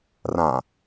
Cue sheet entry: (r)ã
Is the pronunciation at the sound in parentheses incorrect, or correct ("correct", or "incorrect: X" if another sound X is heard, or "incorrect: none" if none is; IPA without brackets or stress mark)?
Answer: correct